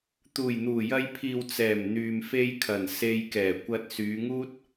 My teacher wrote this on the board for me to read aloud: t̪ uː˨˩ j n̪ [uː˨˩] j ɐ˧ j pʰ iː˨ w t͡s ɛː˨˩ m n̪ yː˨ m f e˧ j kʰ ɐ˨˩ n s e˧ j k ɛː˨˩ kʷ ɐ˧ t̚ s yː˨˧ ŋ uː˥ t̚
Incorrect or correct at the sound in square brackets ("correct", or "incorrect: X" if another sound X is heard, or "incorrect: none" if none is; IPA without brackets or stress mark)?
correct